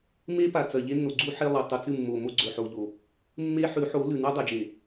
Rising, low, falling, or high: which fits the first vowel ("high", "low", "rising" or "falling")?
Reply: high